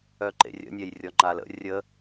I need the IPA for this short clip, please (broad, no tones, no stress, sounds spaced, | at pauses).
œ ǃ ḛ rʲ ə̰ nʲ ɛ j rʲ ɔ ŋ͡ǃ a l ə̰ rʲ ə